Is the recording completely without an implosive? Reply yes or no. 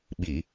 no